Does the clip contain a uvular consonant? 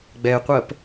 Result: yes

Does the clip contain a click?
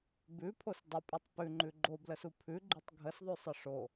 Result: yes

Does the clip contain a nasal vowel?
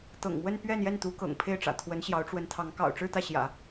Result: no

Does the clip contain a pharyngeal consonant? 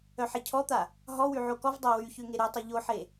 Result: yes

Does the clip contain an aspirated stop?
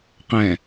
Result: no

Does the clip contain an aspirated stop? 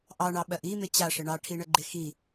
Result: yes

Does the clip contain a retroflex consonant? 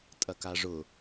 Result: yes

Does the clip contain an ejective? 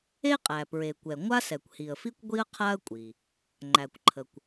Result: yes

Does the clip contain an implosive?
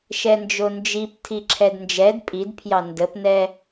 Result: no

